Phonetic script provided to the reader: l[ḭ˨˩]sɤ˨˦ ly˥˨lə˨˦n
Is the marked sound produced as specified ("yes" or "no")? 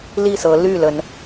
no